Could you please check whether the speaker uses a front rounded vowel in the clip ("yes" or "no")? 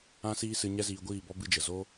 no